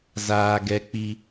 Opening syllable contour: low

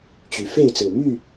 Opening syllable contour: rising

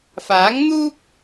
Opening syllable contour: rising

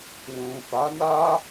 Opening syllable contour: low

